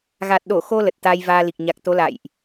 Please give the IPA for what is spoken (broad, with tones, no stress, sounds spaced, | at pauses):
ɣ a˨˩ t̚ ɗ o˧˩ x o˧ l ə˨˩ t̚ t̪ aː˧ j v aː˧ l i˨˩ k̚ ɲ a˨˩ k̚ t̪ o˨˦ l a̰˧˨ j ʔ